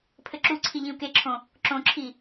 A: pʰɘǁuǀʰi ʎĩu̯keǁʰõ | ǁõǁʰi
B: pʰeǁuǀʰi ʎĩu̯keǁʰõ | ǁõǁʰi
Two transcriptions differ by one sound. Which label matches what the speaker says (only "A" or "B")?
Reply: A